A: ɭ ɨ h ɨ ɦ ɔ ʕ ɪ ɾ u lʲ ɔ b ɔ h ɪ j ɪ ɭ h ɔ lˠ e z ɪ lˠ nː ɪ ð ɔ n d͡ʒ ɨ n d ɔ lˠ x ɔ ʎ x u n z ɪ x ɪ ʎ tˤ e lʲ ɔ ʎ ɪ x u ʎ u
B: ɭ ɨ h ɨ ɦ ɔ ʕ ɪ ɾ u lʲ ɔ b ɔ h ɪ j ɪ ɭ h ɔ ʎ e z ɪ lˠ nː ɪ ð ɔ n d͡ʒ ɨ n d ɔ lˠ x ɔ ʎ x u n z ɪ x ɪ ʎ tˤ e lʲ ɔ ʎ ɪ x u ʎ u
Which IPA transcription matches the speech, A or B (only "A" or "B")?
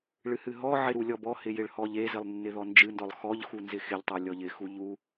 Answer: B